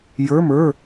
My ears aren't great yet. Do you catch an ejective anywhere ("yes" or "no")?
no